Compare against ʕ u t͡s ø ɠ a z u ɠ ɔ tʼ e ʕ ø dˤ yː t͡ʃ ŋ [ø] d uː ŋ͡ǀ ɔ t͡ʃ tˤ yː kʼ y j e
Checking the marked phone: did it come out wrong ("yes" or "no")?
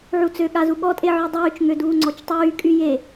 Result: no